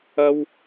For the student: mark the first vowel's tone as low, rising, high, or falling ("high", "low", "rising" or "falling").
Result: high